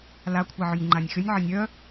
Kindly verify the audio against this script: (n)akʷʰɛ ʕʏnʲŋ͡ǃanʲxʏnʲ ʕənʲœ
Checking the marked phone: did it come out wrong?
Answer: yes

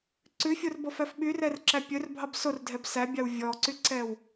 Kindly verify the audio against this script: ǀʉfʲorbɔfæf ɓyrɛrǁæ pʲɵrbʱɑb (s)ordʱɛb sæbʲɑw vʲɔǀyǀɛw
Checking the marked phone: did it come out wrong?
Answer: no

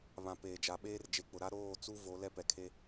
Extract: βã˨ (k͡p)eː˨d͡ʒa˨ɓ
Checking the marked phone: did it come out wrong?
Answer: yes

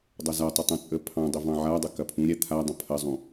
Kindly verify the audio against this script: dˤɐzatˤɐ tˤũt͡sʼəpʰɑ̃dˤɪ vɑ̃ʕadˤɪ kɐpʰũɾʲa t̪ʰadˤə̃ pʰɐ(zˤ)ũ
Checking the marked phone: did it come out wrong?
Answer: no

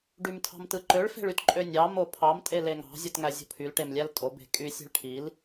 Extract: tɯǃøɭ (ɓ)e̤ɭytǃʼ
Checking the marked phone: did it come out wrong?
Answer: yes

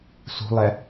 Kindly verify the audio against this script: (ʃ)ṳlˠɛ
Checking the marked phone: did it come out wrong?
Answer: yes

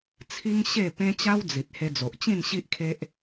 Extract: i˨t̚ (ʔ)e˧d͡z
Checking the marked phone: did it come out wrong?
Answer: yes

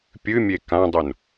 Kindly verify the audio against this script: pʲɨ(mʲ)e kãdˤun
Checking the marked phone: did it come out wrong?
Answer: no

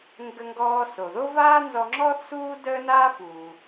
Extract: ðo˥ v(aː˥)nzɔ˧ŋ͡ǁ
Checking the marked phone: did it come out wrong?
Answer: no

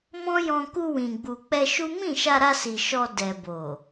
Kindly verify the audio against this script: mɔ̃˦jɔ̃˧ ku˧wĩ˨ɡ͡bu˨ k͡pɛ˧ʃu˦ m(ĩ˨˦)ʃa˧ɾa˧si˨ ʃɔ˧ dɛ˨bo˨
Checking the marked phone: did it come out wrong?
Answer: yes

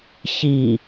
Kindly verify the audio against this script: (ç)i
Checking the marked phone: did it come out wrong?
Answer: no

